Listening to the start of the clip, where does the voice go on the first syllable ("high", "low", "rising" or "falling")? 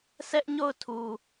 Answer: high